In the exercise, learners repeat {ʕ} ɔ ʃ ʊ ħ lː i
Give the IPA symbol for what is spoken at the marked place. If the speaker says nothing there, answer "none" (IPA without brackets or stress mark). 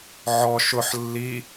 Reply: ʕ